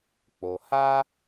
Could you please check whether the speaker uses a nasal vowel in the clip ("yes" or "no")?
no